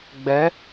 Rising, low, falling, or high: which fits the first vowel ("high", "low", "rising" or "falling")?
rising